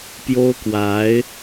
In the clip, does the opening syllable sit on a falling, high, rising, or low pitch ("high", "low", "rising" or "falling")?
high